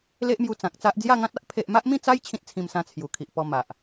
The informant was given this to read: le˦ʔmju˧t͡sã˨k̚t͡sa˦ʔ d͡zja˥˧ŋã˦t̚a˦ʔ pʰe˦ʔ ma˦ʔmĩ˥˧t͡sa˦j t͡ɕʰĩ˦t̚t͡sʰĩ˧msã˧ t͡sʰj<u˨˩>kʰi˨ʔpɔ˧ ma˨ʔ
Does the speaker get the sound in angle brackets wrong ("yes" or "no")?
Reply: no